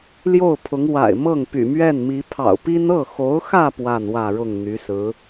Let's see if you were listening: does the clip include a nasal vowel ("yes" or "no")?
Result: no